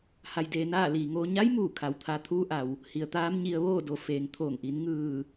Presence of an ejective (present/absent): absent